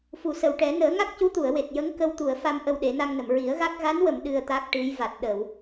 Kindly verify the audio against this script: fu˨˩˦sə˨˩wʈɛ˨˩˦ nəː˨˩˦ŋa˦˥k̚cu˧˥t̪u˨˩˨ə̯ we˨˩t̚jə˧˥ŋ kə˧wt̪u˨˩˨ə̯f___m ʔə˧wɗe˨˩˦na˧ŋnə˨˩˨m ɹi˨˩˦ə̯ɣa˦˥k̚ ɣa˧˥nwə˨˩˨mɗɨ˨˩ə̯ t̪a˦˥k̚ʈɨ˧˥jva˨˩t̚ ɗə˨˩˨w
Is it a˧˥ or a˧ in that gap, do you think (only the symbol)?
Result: a˧